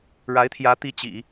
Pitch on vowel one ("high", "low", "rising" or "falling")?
rising